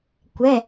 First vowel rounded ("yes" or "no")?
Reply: no